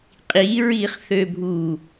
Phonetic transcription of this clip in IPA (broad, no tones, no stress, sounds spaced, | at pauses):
qʼ i ɹ i χ θ ø bʱ u